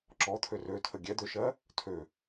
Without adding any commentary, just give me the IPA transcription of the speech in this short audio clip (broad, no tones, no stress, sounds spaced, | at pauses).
ǁ ɔ t̪ʰ ø r ø tʰ ə ɡʲ ɛ d̪ ø ʃ ɜ | tʰ ø